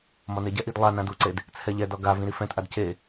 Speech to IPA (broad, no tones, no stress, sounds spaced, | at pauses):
m ɒ n e ɟ ɛ ʔ i d lˠ a n ã d u ǀ e d | t͡sʰ ɛ ʎ ɛ d ɒ ɡ a v ĩ ɾ i f ɛ̃ t ʔ a d c e